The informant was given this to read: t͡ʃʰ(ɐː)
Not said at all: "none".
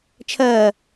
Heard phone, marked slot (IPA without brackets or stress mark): ɐː